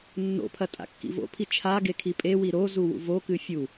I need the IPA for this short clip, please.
nː o̰ pʰ ɐ tʼ a̰ kː ḭ v o̰ pʰ i t͡ʃʰ a ɡ e kʰ i pʼ e w i ɾ o z u w ṵ v o k ɨ fʲ u

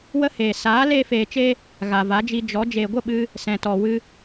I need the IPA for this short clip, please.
w ə˦ h eː˨ s aː˨˦ l eː˦ f eː˧ t͡ʃ e˦ | ɣ a˨ v a˨˦ d͡ʒ i˧ d͡ʒ ɔ˨˦ d͡ʒ eː˨ ɡʷ ə˦˨ ɓ ɨ˧ | s ɛ̃˨ t ɔ˨ w ɨ˧

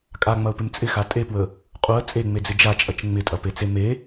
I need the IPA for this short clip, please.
kʼ a ŋ͡m ɐ ʊ̯ p ɪ m t͡sʼ ɪ x a tʼ e p w ə | qʼ u ə̯ t͡sʼ e ŋ͡m e d͡z ɪ d͡ʒ a t͡ʃʼ ɐ t͡ʃ ŋ͡m ɪ tʼ ɐ p e t͡s e m e

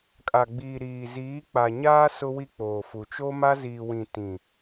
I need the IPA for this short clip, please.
kʼ a˨ ɡ͡b iː˨ ɾ iː˨ z iː˨˦ k͡p a˨ ɲ aː˦ s ʊ˦ w i˦ k͡p oː˨ f u˨ t͡ʃ o˦ m a˦ z iː˨ w ĩ˨ t ĩ˨

